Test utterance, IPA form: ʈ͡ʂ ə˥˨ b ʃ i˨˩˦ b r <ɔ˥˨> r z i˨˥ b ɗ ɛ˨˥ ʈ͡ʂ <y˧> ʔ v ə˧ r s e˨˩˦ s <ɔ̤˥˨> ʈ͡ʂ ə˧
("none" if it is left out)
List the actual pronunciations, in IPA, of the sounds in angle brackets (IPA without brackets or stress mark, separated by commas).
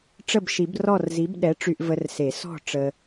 ɔ˥˨, y˧, ɔ̤˥˨